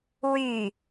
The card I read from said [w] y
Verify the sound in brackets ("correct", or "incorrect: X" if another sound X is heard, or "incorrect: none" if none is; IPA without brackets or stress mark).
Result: correct